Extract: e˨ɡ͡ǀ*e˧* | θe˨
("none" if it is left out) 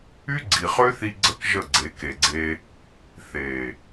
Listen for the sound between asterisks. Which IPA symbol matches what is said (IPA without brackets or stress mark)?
e˧